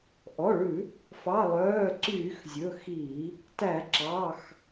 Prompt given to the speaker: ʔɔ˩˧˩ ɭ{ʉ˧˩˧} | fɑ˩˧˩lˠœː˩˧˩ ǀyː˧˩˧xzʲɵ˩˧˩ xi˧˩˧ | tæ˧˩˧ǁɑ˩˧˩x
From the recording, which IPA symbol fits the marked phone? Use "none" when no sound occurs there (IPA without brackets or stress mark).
ʉ˧˩˧